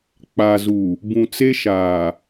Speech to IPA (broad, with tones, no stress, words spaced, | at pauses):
k͡pa˨zu˨ | bũ˨t͡se˦ʃaː˨